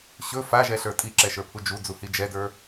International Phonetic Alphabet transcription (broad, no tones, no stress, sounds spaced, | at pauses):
ɕ ɵ f a ʒ ɛ ɬ ə˞ tʼ i ǁ ɛ ʃ ə˞ pʰ u d͡ʒ u d͡z u h i d͡ʒ ɛ d ə˞